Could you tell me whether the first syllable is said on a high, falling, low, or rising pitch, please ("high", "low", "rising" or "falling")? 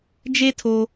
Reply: high